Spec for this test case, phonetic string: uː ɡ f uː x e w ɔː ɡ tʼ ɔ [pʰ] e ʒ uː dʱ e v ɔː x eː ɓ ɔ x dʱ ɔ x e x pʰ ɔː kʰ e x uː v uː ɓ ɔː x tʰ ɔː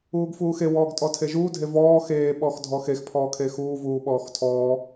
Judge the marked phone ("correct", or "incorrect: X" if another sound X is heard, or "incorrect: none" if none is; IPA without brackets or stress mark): incorrect: tʰ